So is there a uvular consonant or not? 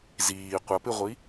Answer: yes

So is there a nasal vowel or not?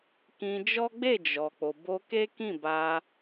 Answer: yes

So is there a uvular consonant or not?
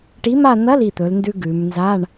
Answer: no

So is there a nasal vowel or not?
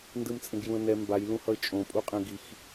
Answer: yes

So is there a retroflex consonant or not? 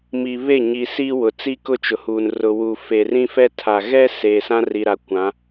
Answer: no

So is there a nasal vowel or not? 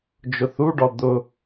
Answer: no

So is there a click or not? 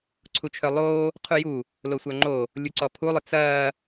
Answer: yes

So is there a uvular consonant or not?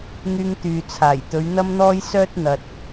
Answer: no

